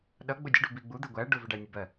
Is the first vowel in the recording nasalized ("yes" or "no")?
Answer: no